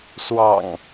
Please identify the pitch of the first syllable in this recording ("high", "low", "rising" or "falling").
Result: low